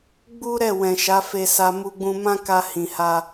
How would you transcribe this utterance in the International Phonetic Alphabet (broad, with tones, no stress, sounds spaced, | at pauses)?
ɡ͡b u˦ ɾ ɛ˦˨ w ɛ̃˨ ʃ a˨˦ f e˧ s a˧ m u˧ ɡ͡b ũ˧ m ã˦ k a˦ h ĩ˧ h a˦